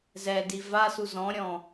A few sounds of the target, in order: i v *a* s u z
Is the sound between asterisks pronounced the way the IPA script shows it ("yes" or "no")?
yes